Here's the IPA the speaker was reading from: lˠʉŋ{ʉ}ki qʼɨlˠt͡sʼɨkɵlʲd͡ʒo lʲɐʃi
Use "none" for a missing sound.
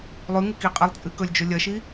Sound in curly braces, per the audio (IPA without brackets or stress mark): ɨ